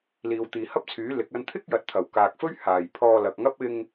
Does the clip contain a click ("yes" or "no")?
no